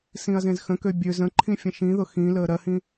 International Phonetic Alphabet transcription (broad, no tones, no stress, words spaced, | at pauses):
sĩɐ̯zẽzxə̃kø bʲø zə̃ǃʰĩ fʲə̃ʃĩðʊ xĩ ləːɾɜhĩ